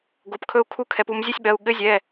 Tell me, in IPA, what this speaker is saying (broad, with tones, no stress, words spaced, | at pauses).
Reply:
ɡo˩˧˩pkʰɵ˧u̯kʰu˧˥ kʰɛ˩˧pu˩˧mzʲɘ˧˥˧sʲɓɜ˩˧˩u̯ ɠɘ˧˥zʲɛ˩˧˩